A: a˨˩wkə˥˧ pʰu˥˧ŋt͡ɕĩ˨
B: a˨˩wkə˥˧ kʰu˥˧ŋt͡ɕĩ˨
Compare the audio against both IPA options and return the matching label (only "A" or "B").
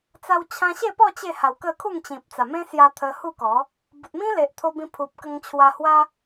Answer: B